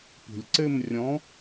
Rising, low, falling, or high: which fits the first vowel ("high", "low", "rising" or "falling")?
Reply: low